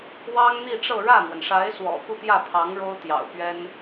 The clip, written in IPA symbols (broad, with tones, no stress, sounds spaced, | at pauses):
w ɑ˥ ŋ n̪ i˥˧ ʈ͡ʂ ɤ˥˧ ɻ ä˥˩ n̪ w ə˩ n ʂ a˧˥ ɪ̯ s w ɔ̰˨˩ k u˥˧ t̪ j ä˥˩ pʰ ɑ˧˥ ŋ ɻ o˥ ʊ̯ t̪ j ɑ̰˨˩ ʊ̯ p ɥ ɛ˥ n